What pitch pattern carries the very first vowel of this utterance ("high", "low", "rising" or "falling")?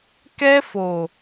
high